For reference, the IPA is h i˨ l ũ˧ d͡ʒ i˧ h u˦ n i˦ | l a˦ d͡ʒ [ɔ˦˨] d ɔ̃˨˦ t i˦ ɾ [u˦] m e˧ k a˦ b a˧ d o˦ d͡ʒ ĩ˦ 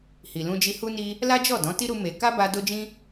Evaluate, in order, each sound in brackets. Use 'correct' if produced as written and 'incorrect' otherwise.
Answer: correct, incorrect

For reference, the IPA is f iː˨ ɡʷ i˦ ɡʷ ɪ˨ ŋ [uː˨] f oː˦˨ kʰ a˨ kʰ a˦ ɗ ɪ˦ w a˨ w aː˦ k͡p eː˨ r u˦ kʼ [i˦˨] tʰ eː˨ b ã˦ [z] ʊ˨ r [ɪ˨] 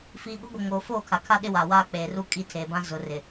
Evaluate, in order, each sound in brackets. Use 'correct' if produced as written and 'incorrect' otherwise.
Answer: incorrect, correct, correct, correct

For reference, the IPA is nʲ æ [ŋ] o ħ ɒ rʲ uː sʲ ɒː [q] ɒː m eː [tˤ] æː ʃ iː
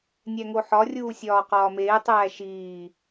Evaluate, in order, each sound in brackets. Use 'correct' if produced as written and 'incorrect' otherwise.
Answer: correct, correct, correct

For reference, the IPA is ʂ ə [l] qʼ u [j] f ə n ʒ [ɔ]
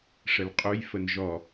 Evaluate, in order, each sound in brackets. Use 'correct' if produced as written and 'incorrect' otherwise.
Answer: correct, correct, correct

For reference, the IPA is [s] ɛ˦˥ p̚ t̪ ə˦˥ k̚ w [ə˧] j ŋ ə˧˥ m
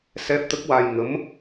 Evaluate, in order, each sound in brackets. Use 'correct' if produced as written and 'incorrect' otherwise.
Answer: correct, incorrect

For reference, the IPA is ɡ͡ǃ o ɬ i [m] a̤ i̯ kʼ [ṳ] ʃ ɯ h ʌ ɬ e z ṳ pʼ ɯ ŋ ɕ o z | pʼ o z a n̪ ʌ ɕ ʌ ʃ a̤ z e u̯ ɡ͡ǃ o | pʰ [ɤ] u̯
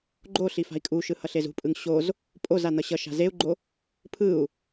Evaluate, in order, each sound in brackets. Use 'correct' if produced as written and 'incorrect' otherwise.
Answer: incorrect, incorrect, incorrect

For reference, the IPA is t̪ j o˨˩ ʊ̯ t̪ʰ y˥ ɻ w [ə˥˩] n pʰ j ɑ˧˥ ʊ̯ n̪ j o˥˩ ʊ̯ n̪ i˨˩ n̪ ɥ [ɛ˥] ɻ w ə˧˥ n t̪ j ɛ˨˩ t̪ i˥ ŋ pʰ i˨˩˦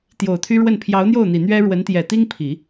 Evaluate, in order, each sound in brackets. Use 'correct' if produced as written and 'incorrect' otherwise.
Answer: correct, correct

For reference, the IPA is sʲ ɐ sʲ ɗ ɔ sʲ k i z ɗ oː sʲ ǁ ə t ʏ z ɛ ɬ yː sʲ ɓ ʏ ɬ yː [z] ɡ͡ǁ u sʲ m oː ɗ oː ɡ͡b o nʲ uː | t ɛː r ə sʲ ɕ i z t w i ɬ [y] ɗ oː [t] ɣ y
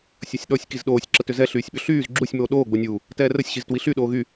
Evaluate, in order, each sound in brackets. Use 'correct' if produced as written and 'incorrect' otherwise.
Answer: correct, correct, incorrect

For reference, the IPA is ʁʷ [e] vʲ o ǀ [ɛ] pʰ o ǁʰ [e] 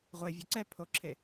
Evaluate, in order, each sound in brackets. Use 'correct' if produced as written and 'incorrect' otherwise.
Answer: correct, correct, correct

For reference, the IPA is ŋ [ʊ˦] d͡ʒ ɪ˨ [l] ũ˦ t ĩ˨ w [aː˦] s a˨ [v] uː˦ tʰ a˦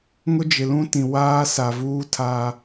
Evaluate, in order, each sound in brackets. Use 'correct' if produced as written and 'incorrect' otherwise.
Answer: correct, correct, correct, correct

